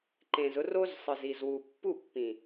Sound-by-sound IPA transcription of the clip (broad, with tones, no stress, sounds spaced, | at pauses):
ǃ ẽ˨ z ʊ˧ r o˦ z sˤ ɯ˨ z i˨ z w u˨ pː u˦˨ pː ĩ˨